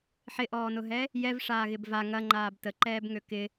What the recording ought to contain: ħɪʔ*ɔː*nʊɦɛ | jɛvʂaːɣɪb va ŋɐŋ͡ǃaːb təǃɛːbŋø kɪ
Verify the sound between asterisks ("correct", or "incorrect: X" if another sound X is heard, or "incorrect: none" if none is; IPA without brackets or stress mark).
correct